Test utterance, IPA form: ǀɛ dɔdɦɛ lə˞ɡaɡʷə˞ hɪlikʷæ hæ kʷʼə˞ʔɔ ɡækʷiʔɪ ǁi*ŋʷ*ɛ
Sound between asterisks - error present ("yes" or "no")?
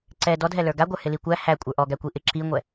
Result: no